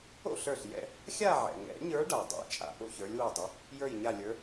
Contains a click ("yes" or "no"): no